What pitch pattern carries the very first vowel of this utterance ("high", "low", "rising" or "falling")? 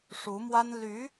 rising